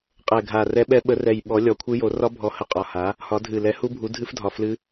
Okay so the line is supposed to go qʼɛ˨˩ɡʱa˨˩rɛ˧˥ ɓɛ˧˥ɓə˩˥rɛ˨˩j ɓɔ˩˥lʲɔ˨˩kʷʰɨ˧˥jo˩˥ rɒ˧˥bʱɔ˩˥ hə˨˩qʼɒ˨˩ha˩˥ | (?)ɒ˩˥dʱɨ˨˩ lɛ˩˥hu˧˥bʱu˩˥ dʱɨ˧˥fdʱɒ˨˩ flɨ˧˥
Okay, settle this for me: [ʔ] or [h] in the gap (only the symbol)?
h